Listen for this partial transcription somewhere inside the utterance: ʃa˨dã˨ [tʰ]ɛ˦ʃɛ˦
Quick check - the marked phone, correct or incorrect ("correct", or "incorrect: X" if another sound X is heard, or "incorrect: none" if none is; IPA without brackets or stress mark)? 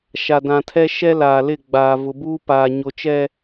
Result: correct